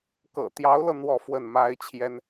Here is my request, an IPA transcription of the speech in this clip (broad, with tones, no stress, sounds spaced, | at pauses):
k ɤ̰˨˩ t̪ j ɑ˧˥ ʊ̯ l ɤ˧ n̪ w ɔ˥˧ f w ə˥˩ n m a˥ ɪ̯ t͡ɕʰ j ɛ˥ n